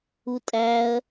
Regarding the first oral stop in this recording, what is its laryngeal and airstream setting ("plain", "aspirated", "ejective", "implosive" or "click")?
ejective